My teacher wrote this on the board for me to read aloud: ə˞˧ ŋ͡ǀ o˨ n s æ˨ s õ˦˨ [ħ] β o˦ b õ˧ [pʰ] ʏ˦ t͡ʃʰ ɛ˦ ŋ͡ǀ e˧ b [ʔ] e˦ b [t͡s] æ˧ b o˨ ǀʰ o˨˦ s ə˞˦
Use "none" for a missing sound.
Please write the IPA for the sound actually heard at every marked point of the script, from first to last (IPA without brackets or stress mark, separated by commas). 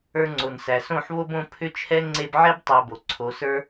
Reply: ħ, pʰ, ʕ, tˤ